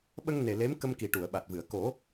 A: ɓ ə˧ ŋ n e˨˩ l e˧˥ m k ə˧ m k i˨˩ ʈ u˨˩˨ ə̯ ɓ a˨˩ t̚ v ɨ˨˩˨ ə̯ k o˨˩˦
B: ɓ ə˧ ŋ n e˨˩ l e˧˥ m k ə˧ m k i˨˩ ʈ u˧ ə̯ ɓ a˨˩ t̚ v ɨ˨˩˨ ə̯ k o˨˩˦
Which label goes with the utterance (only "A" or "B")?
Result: A